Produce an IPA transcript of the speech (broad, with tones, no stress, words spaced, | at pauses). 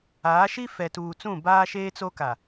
aː˨˦ʃi˦ fɛ˨tuː˨t͡sũ˦˨ baː˦ ʃeː˦t͡so˦ka˨